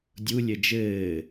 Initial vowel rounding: rounded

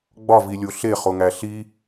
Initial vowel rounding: rounded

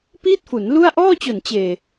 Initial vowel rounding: unrounded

